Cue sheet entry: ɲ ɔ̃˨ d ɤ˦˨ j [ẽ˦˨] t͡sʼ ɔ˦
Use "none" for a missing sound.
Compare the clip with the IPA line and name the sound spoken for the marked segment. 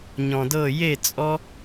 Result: e˦˨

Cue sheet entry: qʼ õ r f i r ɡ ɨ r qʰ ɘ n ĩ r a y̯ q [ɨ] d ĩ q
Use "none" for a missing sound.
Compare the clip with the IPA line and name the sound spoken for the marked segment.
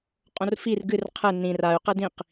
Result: e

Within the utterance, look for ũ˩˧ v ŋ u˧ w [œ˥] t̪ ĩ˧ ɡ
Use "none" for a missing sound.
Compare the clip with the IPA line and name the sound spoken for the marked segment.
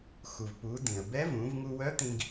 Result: œ˧˥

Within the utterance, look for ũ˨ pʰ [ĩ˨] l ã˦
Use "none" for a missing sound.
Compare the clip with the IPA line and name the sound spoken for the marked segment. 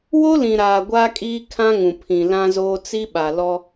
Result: ĩ˨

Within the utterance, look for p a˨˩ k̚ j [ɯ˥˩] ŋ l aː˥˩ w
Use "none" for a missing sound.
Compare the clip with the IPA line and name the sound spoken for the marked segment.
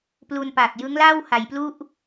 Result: ɯ˦˥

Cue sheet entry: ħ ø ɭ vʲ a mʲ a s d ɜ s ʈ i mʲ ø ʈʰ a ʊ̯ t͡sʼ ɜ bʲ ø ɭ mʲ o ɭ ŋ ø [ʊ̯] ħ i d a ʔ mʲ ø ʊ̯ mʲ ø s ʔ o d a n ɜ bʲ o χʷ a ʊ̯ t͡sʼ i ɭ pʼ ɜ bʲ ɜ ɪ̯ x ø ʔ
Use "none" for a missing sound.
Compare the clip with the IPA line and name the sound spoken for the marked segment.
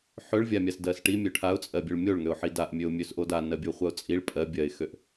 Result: ʊ̯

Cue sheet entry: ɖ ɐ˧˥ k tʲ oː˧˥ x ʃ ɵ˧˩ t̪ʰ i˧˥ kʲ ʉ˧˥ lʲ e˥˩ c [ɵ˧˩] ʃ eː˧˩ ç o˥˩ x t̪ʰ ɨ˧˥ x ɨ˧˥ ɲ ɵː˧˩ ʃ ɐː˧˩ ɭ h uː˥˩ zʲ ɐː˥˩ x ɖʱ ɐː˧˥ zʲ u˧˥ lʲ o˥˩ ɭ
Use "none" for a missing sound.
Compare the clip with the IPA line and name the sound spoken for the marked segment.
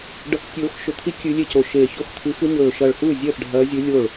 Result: o˧˩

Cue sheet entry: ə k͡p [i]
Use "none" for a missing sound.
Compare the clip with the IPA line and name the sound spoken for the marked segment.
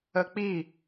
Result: i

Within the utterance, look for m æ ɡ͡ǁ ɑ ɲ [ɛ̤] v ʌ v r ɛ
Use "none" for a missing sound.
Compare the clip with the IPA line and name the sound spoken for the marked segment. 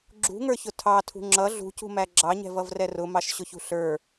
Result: ɛ̤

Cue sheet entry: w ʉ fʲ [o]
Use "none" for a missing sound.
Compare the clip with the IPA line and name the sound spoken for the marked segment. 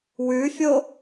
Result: o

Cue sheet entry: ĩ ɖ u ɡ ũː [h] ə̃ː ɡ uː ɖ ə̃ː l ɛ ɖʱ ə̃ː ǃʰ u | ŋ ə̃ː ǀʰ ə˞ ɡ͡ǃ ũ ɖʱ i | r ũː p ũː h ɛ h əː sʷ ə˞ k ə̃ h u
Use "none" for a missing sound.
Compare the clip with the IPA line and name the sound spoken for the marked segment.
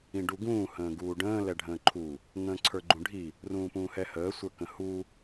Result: h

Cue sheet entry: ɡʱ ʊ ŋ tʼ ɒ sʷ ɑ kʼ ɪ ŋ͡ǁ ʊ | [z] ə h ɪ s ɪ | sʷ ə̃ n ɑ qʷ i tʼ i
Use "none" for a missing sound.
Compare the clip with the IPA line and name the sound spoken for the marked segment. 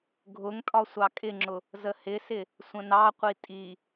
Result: z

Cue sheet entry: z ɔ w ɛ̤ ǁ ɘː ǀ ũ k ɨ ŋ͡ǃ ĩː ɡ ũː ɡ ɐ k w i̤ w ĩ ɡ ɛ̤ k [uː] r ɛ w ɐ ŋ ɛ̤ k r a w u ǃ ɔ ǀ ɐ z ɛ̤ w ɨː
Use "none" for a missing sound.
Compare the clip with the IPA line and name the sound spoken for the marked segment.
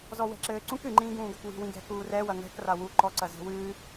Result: uː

